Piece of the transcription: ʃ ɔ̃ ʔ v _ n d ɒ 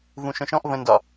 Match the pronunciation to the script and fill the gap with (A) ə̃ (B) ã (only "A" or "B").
A